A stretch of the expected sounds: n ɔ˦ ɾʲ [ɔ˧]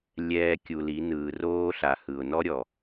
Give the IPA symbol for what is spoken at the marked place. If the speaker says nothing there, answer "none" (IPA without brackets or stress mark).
ɔ˨